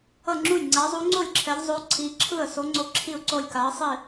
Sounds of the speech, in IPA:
ʌ˥˩ŋ͡ǁu˥˩j ŋ͡ǀa˨˦zˤu˨˦ŋ͡ǀo˥˩lʲ ǁʰɛ˨˦ʎzˤo˨˦ ǀʰi˨˦ǁʰɯ˥˩ə̯ so˨˦ŋ͡ǀo˨˦ ǁʰi˥˩ʊ̯ǀo˥˩lʲ ka˨˦ə̯sˤi˥˩

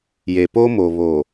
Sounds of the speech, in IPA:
je˨po˦mo˨ βo˨

